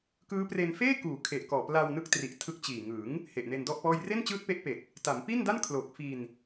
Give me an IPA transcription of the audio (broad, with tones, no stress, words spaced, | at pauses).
kɯː˦˥pre˧n feː˥˩kuː˩˦ kʰe˨˩ʔkɔː˨˩plaː˧w nɯ˦˥k̚tri˨˩ʔ tʰɯ˦˥k̚t͡ɕiː˨˩ ŋɯ˩˦ŋ | he˨˩ʔne˧ndɔ˥˩ʔpɔː˥˩j re˥˩nt͡ɕɯː˦˥t̚ pe˦˥ʔpe˨˩k̚ | ta˩˦mpi˥˩nda˥˩n kʰlo˨˩k̚fi˧n